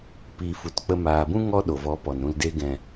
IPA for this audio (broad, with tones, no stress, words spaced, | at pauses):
piː˨fu˨tk͡pə˧ maː˨bũ˦ ŋɔ˦ɗo˨vɔ˨˦ pɔ˨n ɾũ˨lde˧ ɡɛ̃˨